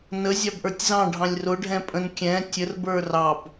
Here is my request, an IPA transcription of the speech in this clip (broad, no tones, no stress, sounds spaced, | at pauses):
n ə zʲ ɑ b ʔ ə˞ tʲ z ɑ̃ ɖʱ ɑ̃ lʲ r ʊ ɖʱ ɛ̃ pʼ ə̃ n kʲ ɛ̃ tʲ ə r b ə˞ r ɑ b